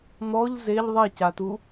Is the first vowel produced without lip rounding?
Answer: no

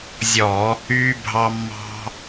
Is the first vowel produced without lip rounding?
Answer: no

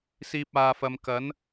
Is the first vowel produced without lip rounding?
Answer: yes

